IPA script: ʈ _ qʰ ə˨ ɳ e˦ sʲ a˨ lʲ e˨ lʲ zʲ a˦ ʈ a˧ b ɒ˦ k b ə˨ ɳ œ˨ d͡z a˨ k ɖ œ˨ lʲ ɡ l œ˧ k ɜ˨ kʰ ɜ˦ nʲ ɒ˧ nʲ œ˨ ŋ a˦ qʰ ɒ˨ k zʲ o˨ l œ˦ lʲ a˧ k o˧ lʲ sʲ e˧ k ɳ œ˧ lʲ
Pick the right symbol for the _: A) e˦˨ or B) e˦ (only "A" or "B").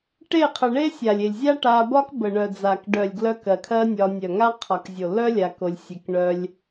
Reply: A